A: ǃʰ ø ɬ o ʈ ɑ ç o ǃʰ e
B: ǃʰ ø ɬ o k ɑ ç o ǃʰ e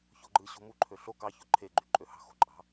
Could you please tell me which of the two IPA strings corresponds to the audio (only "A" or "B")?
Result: B